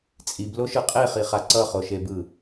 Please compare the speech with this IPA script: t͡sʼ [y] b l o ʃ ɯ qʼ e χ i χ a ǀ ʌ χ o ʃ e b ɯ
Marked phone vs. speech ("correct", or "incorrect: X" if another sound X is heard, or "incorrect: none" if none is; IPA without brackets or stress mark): incorrect: i